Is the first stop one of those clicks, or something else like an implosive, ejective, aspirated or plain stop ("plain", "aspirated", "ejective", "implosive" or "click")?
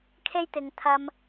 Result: aspirated